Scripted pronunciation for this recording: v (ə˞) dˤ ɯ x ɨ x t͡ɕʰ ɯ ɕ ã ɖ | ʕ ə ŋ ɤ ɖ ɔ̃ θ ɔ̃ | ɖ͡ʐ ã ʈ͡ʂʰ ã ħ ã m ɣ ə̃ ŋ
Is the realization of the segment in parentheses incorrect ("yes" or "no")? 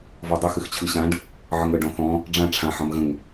yes